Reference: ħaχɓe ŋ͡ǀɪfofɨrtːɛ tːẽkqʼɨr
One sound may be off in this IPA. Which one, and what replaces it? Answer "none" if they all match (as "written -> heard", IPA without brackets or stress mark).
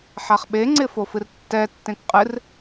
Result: none